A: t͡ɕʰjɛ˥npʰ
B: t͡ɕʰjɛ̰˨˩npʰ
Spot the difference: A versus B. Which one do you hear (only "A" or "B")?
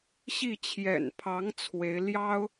B